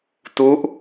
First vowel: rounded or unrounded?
rounded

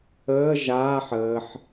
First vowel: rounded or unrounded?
unrounded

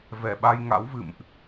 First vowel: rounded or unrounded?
unrounded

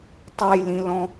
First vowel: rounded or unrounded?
unrounded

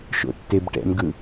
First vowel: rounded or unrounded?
rounded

